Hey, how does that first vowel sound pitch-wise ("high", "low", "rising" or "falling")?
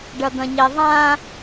low